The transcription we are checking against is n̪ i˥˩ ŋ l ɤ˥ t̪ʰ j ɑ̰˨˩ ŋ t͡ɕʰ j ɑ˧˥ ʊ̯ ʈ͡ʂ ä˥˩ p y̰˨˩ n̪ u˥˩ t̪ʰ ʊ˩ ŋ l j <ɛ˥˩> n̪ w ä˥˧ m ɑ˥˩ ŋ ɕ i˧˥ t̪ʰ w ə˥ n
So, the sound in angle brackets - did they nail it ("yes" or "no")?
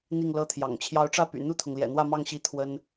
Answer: no